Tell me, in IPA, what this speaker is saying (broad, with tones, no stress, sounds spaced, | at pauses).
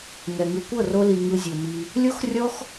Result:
ŋ ɛ˨ ŋ ɯ˨ kʷ ɤ˦˨ r o˧ l i˨ ŋ ɯ˧ zʲ o˨ m i˧ | lʲ o˦ x rʲ ɔ˦ x